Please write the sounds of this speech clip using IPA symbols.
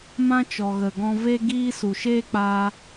mã˦t͡ʃɔ˨ ɣə˨ɡɔ̃˧ve˦ ɡiː˦su˨ ʃeː˦k͡pa˧

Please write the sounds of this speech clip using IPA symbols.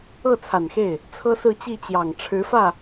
ɤ˥˩t͡sʰa˨˩nxe˥˩ɪ̯ | t͡sʰɤ˥sɹ̩˥˧t͡ɕi˥˩ t͡ɕjɑ˨˩ŋ ʈ͡ʂʰɻ̩˧˥fä˥˩

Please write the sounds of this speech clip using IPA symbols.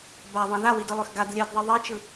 baðˤẽ ðawidɯlˠøx ɡad lʲɜdðˤi ðˤit͡ʃɯ

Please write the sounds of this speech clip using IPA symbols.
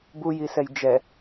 bujisɛj d͡ʒɛ

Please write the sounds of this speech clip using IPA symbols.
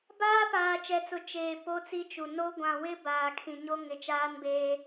baː˦ paː˨ t͡ʃɛ˨t͡sʊ˨ t͡ʃeː˨ po˦t͡si˦t͡ʃu˨ no˦ ɡʷã˨wɪ˦ baː˨kʰĩ˨ɲo˦ ŋɪ˨t͡ʃaː˦nbeː˦

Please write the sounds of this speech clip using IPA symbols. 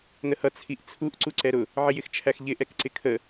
nəhʌ t͡sʰiʔt͡sʰuʔ ǀuǀɛɾʊ | ʕɪjɪxt͡ʃʰæxʎɪ ʔɛkǀɪkʰə

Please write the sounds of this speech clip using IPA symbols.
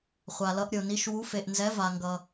χʷa˨lʌ˨˦ʔɾʲo˨ni˨˦ʃ wu˨˦fe˨ʔnzɛ˨˦ va˨ŋɡʌ˨

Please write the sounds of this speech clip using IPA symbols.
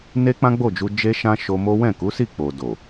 ne˦k͡pã˦ɡ͡bo˦˨d͡ʒu˧ d͡ʒe˦ʃã˦ʃo˧mo˦ wɛ̃˦˨ku˨˦si˦˨k͡po˨ do˨

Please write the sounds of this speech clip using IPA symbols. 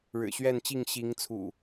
ɻɻ̩˨˩ɕɥɛ˥˨nt͡ɕi˥˨ŋ ɕi˨˦ŋt͡sʰṵ˨˩

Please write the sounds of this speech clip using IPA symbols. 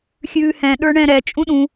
xʲʉːhɛ̃ ɗə˞ɳɛ̃ɾɛ t͡ʃʼũɗũ

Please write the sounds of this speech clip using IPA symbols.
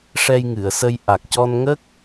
ʂɛ˧jŋɨ˨˩˨ə̯sə˧j ʔa˨˩k̚cɔ˧nŋə˦˥k̚

